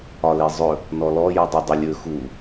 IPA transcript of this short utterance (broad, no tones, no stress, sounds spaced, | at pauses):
ɒ l e zˤ ɵ | n ɔ l ɔ j ʉ dˤ ʉ dˤ ɵ lʲ ɵ x u